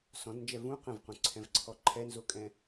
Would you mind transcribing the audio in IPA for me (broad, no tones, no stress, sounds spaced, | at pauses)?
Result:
s ɔ̃ d n d͡ʒ ɛ v ũ q ə̃ v q ũ ǀʰ ɛ̃ v ǀʰ ɔ ǃʰ ɛ n z o kʼ ɛ̃